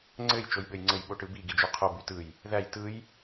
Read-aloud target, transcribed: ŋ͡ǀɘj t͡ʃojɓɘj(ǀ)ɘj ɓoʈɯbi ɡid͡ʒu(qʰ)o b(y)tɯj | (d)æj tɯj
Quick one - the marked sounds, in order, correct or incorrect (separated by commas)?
incorrect, correct, correct, incorrect